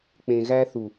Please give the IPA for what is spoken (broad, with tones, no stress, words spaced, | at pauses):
k͡pẽ˨ɣæ˦ θu˨